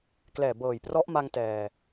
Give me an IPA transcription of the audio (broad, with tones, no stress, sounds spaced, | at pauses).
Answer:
k l ɛː˨˩ b ɤː˨˩ j p r ɔ˦˥ ʔ m a˧ ŋ t ɛː˨˩